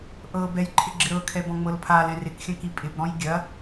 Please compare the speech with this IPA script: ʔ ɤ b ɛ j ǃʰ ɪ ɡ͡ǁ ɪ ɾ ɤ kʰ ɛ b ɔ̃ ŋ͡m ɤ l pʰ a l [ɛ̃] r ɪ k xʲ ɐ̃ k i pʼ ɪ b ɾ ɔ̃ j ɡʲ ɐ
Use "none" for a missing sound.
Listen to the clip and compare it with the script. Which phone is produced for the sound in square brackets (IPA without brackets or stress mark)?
ɛ̃